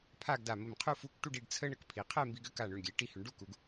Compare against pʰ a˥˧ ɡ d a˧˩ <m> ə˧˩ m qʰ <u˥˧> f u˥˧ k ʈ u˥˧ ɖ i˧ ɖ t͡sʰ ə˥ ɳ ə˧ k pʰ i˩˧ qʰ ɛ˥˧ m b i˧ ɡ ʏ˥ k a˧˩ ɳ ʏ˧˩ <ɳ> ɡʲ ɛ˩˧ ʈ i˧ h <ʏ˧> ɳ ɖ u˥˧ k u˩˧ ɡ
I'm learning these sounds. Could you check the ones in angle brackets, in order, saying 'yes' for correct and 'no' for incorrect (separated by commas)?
yes, yes, yes, no